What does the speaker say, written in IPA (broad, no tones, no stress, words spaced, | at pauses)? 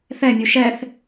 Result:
θɛmʲu ʃɛθ